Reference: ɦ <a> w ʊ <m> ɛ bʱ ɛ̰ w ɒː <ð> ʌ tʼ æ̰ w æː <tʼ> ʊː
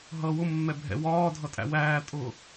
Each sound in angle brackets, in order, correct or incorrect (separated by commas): incorrect, incorrect, incorrect, correct